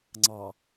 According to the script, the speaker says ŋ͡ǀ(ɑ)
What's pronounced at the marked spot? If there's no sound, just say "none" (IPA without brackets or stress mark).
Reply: ɑ